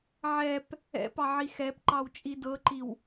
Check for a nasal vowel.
absent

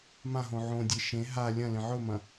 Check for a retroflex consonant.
absent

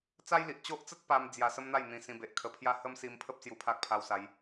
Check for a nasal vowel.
present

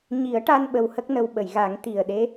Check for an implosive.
present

